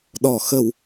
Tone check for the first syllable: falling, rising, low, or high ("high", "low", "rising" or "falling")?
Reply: low